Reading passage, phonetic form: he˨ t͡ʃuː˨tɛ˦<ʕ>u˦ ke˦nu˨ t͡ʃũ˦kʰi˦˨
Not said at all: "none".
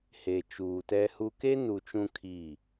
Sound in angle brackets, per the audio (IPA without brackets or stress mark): h